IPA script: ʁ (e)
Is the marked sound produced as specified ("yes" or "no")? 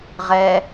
no